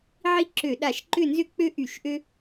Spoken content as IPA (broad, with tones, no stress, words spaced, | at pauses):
ʕi˦ǁø˧˩˧ɗa˧˩˧ʃ ǃʏ˦˨nzʏ˦ k͡pø˦ʔy˧˩˧ʃʔø˦